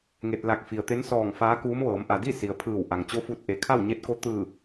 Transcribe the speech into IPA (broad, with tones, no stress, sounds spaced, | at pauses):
ŋ e˧ t̚ l a˧˩ k̚ f i˩ ə̯ t̪ e˧˥ n s ɔː˧˩ ŋ f aː˧˥ k uː˧˥ m ʋ ɤː˩˧ m ʔ a˩ d i˥˨ s i˩ ə̯ pʰ ɯː˧˩ w ʔ a˩ ŋ t͡ɕ o˧˥ f u˧ t̚ ʔ e˩˧ kʰ a˥˨ w ɲ e˧˥ t̚ k o˧˥ t̪ ɯː˧˩